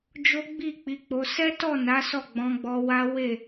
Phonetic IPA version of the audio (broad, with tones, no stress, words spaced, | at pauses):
d͡ʒo˦ɡ͡bi˦˨k͡pi˨˦k͡po˧ sɛ˦tɔ˦˨na˨˦ sɔ˦˨ɡ͡bɔ̃˧ɡ͡bɔ˧wa˦ we˦˨